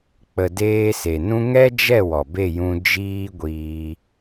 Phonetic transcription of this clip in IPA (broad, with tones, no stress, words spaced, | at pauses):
k͡pə˨deː˧ se˨nũ˦ ŋɛ˦d͡ʒɛ˦˨ wɔ˨ be˦˨jũ˧ d͡ʒiː˦ɡʷiː˧